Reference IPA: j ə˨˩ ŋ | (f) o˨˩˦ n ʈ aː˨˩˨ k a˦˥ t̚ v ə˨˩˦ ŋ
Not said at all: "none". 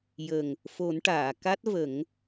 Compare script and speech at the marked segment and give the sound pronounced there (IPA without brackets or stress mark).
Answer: f